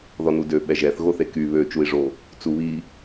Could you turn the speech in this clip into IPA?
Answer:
ð ɔ n u d ø ɓ ɛ ʒ ɛ θ ɣ o θ e k y β ø t͡ʃ u i̯ ʐ o | t͡s u β i

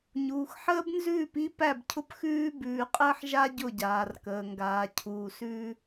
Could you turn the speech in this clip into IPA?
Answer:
ɲ uː˨ x ħ əː˦ b n z ʉː˦˨ p i˦ p æ˦˨ b cʰ ʊ˦ p x ʉː˦ b ʉː˨ qʼ əː˦ ħ ʒ a˦ ɟ ʊ˦˨ ɟ aː˨ r k əː˨ ŋ ɡ aː˨ cʰ uː˨ s ʉ˦

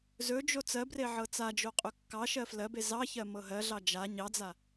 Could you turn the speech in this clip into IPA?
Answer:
z ɵ d͡ʒ o t͡s ɜ b r e ʕ ɤ t͡s a d͡ʒ o qʼ ɵ kː ɑ ʃ ɜ f l ɜ b e z ɑ ç ɜ m ɤ ɦ ɜ ɮ ɑ d͡ʒ a ɲ ɑ d͡z a

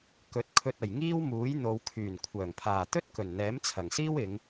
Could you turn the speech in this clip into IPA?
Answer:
k ɵ˨˥ t̚ kʰ ɵ˧ t̚ ɐ˨˩ j ŋ iː˥ w m uː˨˥ j n̪ o˨˧ w kʰ yː˨˩ n kʷʰ œː˨˩ ŋ pʰ aː˨˩ t̪ ɵ˥ t̚ k ɵ˨˩ n n̪ ɛː˨˥ m t͡sʰ ɐ˨˩ ŋ s iː˥ w ɪ˨˧ ŋ

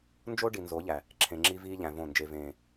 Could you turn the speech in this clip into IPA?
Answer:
n d͡ʒ o˦ ɖ i˨ n z o˨˦ ʎ æ˨ | ǁʰ ẽ˨ ŋ͡ǁ i˦ v iː˦ ʎ æ̃˨ v õ˦˨ n d͡ʒ e˨ v ẽː˨

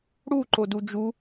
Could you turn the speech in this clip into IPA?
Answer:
ɽ u ǃ o d u d͡ʒ u

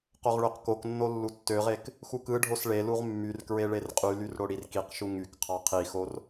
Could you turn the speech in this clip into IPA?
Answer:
q o ʁ ɭ ø q k o k nː o lː u tː ø ʁ e k | x u k ɯ ɖʱ o s ɭ e l u ʁ mː y r k ɹ e ɭ e r qʼ y l y r ɽ o ɽ i r k i q ʃ u ŋ y k qʰ ɑ qʰ i x o r

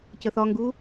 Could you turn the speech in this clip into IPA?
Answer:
c ə θ ɒ ŋ ɡ u

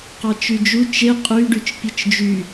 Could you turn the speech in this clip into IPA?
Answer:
q ɑ t͡ʃ y d͡ʒ u t͡ʃ e qʼ y ɖ y t͡ʃ pʲ ɯ t͡ʃ d͡ʒ y

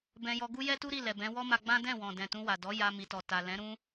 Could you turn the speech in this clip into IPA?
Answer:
b ɛ̃˧ j ɔ˧ ɡ u˦ j ɛ˦ t u˦ ɾ i˦˨ l ɛ˨ b ɛ̃˨˦ w ɔ˦ m a˧ ɡ͡b ã˦ d ɛ̃˦˨ w ɔ̃˨ d ɛ̃˨ t ũ˧ w a˨ d ɔ˨˦ j a˧ m i˨ t ɔ˨ t a˨ l ɛ̃˨˦ ɾ ũ˦

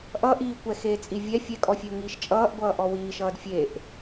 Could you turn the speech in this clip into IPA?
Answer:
ʔ ʌ ʔ iː kʷ ɛ x eː t͡sʼ i vʲ ɛ fʲ ɛ kʼ ɔ fʲ e ʊ̯ ŋ iː ʃ t͡ʃʼ ʌː ʔ ɡʷ ʌː ʔ ɔ w iː ʃ ʌː d fʲ e ʔ

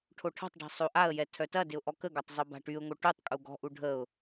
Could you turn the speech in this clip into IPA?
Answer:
ʈʰ o ʈʰ ɔ̤ tˤ ɖ a̤ sˤ o ʔ a ə̯ j ɛ tʰ œ t ɐ d ɪ ʊ̯ ʔ ɔ k ə ɡ ɔ tˤ zˤ o b a̤ ʈ y ʊ̯ ŋ o ʈ u tˤ kʼ u ɡ ɔ̤ ʔ u ɖʱ ə ʊ̯

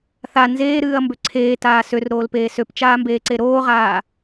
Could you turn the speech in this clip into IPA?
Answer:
θ a n z eː ɾ ɨː ɐ̯ m b ø ǀʰ eː t aː s ø r ɾ oː l p eː s ø p t͡ʃ aː m b eː ǀ e ɾ oː ʁ aː

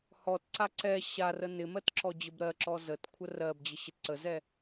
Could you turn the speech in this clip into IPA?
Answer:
h ɔ t ǀ a ǀ ɛ ɕ a r ə n ɪ m ɜ t ǁ ɔ d͡ʑ ə b ɾ ɜ ǁ ɔ z ə t kʷʰ ə r ɜ b d͡ʑ ə ɕ ɪ t ǀ ə z ɛ

